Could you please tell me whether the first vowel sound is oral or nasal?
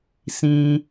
nasal